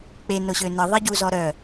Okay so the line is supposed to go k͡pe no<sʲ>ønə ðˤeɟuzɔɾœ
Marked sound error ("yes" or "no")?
yes